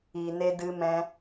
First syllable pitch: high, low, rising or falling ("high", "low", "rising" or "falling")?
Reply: low